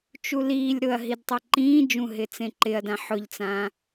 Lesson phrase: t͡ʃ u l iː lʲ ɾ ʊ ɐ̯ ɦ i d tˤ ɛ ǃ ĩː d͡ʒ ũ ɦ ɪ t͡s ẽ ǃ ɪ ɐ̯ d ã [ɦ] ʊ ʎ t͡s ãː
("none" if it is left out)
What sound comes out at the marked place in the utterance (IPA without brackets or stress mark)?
ħ